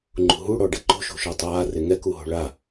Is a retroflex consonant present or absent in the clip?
present